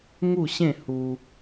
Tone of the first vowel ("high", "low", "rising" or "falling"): falling